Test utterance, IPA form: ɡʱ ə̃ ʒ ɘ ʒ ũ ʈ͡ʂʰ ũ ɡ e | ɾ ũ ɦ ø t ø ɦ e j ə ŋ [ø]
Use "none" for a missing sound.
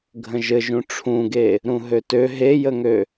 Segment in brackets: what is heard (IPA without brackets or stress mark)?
ø